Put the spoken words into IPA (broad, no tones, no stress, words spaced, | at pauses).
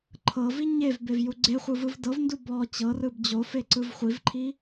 ǃʰɤvi ɲevbevju ɡ͡ǀeχʷɯvɯv dɤvndu bɔ t͡ɕɤrɯb d͡ʑofeǀɯv χʷivǃʰi